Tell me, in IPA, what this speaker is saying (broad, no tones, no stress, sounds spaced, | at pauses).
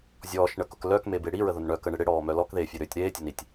zʲ ɔː ʃ ɳ ə k ʊ k l œ k m e b e ɽ i ɹ ə ð ʊ n ɳ œ k ə ɳ ɪ ɽ ɪ ɽ ɔː m œ l ɔ k ð eː fʲ e ɾ ʏː tʲ ɾ eː tʲ ʊ n i tʲ